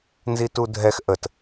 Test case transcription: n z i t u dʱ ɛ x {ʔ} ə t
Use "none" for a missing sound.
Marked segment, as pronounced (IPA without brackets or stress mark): ʔ